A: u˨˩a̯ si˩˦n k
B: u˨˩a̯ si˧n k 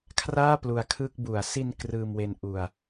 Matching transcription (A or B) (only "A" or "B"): B